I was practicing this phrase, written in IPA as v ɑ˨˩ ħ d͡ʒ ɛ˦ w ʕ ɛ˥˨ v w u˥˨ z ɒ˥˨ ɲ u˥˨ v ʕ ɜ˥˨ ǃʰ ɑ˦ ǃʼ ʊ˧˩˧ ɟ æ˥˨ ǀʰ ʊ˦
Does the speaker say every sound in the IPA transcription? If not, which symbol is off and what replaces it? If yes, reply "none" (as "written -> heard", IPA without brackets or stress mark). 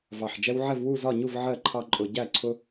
none